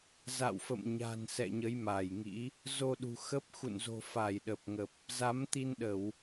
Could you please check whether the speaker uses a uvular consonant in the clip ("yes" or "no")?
no